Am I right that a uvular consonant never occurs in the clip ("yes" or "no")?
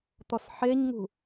yes